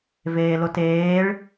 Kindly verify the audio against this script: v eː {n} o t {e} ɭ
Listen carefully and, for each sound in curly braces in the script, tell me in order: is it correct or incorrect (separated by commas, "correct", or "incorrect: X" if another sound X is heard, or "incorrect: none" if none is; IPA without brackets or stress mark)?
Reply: incorrect: l, incorrect: eː